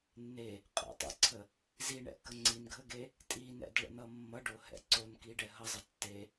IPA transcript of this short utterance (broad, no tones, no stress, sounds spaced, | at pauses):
nː e | qʼ ə̰ tˤ ɛ̰ ǀʰ ə | z i ɳ ɛ̰ k ə ŋ͡ǀ i n ɡʱ ə ɡ e | tʼ i n ɛ̰ d ɭ ə̰ n ʌ mː ʌ ɖ o h ɛ̰ ǀ o n k i ɖ ɛ ɦ ʌ zˤ ə tː e